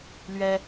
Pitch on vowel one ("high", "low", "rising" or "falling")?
high